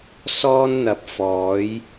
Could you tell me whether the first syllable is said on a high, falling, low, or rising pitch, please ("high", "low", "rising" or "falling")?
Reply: high